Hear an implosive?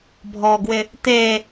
no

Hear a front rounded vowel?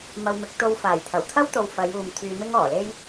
yes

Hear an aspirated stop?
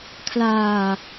yes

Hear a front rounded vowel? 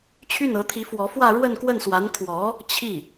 yes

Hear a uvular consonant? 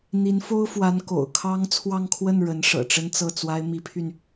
no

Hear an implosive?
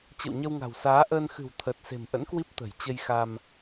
no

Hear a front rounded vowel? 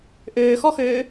yes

